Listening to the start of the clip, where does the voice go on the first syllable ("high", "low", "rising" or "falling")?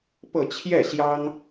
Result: falling